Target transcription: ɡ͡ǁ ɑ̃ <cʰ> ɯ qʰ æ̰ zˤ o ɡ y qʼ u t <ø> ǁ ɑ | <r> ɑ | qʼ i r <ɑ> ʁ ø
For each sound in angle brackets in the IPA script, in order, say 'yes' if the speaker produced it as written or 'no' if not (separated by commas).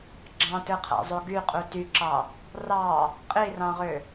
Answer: no, no, yes, no